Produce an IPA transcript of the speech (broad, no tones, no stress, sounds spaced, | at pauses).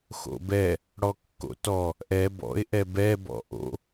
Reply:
x o̰ b ɛ | ɽ ɔ kː o̰ t ɔ | ʔ ɛ b ɔ̰ ɪ̯ ʔ ɛ b ɛ b ɔ̰ ʔ o̰